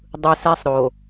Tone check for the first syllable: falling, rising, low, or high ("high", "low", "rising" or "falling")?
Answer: low